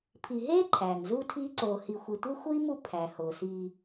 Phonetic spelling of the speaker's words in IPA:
pʰ i˨ ɦ eː˥ ǃʰ æː˩ ŋ z uː˦ tʰ iː˦ ǀ oː˨ h i˨ xʷ e˨ tʷ e˥ xʷ iː˥ m u˦ pʰ æ˩ h oː˩ s iː˨

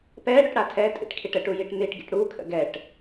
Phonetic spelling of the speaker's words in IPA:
p ɛ ɽ ɵ ʈ ɽ a tʰ ɛ tʼ ḭ ʈ kʰ i ʈ ə ʈ u j i ʈ n̪ i ʈ ɡ ḭ ʈ ɽ u kʰ ə̰ ɡ ɛ ʈ

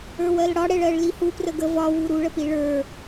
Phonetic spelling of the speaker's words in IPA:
ə˞ w ɜ l ɽ ɒ ɽ ɛ ɭ ɜ ɭ l i h u p r ə ɡ ə v ɒ w u ɾ u ɭ ə p i ɭ ə˞

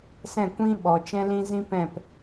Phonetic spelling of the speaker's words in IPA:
s ɛ̃˦˨ kʷ ĩ˦ ɓ ɔ˨ t͡ʃ ɛ̃˦ l ĩ˦ z ĩ˦ p ɛ̃˦˨ p

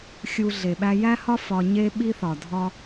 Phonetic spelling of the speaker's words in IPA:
xʲ u˧ ɮ e˨ ɓ æ˧ j æ˦ h ɒ˦ f ɒ˧ ɲ e˦ ɓ i˧ θ ɒ˨ dʱ ɒ˦

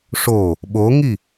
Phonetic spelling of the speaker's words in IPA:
ʂ o | ɓ o ŋ i

